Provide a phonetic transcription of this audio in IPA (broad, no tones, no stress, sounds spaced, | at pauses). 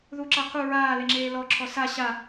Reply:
ð u ǁ a qʰ u ɹ aː l e ŋ͡ǁ eː l ɔ ǁʰ ɔ s a ɕ a